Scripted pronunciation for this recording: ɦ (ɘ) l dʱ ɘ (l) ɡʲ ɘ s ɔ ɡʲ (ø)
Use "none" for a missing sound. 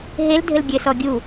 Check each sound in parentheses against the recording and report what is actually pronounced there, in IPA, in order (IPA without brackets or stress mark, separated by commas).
e, l, u